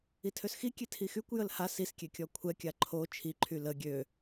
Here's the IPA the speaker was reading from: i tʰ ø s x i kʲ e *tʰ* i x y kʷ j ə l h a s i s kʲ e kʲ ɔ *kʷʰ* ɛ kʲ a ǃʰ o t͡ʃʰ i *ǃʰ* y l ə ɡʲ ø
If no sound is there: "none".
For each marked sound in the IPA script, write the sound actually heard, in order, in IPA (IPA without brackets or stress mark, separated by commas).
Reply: tʰ, kʷʰ, ǃʰ